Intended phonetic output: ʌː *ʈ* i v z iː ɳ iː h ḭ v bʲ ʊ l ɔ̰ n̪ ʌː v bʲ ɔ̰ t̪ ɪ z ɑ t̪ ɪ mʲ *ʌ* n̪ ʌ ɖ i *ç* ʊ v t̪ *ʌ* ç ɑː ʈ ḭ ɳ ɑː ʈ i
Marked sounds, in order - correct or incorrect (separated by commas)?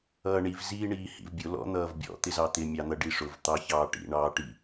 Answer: incorrect, incorrect, incorrect, incorrect